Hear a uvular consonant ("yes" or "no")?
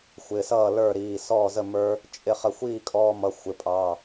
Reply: yes